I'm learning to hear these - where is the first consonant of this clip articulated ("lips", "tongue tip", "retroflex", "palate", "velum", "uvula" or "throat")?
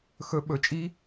velum